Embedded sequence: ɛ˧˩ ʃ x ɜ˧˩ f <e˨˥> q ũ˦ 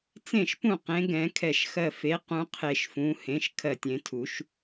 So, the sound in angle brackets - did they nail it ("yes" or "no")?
yes